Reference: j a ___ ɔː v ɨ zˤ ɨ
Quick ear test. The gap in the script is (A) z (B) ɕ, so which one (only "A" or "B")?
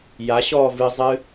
B